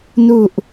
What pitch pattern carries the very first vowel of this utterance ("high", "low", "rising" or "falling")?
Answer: low